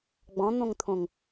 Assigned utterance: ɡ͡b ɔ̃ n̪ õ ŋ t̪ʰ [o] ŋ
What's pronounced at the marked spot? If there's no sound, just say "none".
õ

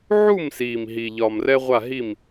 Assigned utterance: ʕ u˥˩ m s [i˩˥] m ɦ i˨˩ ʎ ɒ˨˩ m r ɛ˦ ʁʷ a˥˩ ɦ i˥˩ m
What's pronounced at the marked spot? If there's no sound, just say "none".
i˨˩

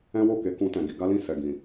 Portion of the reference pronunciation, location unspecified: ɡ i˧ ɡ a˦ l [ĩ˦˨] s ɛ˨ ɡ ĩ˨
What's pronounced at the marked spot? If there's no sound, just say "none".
ĩ˦˨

